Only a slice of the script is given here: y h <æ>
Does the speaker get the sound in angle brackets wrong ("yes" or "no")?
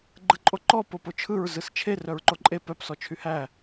no